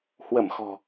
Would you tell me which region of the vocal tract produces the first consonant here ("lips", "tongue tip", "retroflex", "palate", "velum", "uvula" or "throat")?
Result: throat